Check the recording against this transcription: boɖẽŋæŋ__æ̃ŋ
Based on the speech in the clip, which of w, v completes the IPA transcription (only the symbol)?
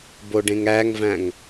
v